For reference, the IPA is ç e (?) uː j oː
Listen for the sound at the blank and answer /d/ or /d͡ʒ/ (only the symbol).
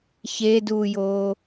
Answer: d